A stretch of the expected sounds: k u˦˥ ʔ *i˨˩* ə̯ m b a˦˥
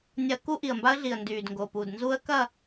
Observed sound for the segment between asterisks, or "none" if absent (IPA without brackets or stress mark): i˨˩